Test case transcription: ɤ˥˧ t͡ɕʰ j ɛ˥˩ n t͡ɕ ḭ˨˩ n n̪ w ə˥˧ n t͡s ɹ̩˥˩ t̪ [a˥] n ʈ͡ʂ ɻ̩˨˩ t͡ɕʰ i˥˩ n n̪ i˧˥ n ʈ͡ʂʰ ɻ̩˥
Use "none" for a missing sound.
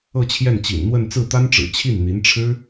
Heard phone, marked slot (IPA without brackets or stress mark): a˥